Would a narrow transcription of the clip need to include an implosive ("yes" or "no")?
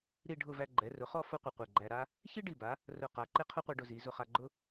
no